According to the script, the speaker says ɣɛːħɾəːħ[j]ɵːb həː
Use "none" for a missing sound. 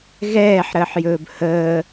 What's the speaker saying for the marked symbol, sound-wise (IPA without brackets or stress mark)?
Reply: j